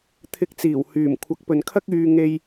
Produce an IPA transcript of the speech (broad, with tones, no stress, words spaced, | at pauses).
t̪ʰɪ˧k̚t͡siː˨˩w hyː˨˩m kʷʰɐ˨˥k̚pɵ˨nkʰɐ˥k̚ yː˧ŋe˧j